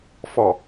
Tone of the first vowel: low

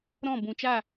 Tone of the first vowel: falling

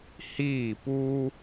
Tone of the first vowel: falling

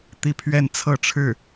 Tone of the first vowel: falling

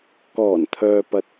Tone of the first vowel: low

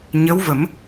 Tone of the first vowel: rising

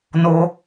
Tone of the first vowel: low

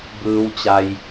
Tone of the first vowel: low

